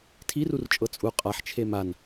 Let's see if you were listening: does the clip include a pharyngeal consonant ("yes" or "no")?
yes